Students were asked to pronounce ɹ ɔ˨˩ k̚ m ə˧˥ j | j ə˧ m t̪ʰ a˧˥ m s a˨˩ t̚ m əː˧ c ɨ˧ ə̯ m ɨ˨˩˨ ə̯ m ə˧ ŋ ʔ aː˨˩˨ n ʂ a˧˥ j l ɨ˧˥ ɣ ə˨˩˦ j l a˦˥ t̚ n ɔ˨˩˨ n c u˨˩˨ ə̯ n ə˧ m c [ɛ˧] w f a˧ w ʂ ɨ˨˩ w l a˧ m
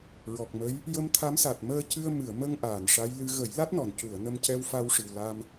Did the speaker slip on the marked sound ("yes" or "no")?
no